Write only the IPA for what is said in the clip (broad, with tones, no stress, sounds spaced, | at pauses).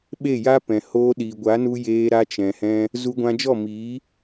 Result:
ɓ e˦˨ j a˦ p ɛ̃˨ h oː˧ ɗ i˨ ɡʷ a˨˦ n u˧ j eː˧ ɾ a˧ t͡ʃ ɛ̃˨ h ɛ̃˧ | z u˧ ɡʷ ã˧ d͡ʒ ɔ˦˨ m iː˨˦